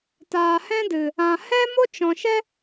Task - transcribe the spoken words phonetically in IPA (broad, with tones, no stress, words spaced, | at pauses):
taː˨hɛ̃˦dɨ˨ | ã˨ hɛ˦mo˦t͡ʃɔ̃˨ ʃɛ˦